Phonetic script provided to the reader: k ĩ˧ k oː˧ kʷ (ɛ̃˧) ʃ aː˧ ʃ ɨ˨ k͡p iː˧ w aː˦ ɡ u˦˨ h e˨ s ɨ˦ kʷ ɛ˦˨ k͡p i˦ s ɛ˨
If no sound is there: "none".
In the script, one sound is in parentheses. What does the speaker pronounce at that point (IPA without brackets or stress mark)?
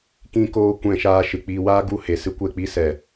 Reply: ɛ̃˧